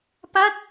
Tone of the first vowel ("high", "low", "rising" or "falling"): falling